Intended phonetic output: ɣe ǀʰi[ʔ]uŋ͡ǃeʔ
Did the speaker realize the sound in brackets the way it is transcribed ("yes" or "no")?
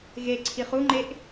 no